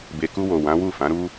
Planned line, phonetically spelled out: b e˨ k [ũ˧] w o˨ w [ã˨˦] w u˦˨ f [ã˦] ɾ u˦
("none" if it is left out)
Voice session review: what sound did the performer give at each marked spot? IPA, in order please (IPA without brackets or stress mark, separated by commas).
u˧, ã˨˦, ã˨˦